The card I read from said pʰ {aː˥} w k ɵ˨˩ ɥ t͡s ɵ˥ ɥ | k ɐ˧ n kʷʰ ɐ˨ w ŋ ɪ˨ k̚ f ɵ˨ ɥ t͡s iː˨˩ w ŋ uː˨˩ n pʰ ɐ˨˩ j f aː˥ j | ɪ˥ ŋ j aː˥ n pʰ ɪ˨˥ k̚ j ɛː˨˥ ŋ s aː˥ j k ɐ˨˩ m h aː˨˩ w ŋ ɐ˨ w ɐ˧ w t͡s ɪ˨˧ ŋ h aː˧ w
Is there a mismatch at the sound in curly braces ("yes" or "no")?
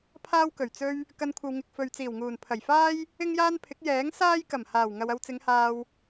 no